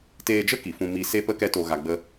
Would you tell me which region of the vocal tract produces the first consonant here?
tongue tip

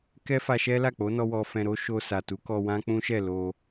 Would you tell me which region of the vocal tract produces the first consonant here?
velum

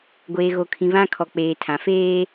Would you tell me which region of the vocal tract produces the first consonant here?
velum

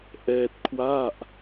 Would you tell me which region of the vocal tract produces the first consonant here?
throat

